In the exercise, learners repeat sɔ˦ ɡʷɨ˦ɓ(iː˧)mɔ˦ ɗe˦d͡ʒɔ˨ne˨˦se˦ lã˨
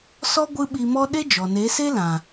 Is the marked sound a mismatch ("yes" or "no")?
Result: yes